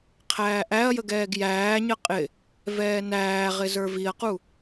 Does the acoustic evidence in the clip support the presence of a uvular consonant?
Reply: yes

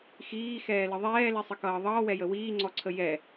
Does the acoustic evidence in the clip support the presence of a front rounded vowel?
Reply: no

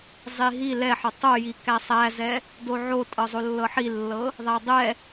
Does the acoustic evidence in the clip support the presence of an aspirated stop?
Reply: no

